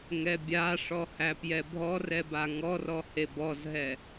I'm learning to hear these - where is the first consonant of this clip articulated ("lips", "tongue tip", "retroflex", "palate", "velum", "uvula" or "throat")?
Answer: velum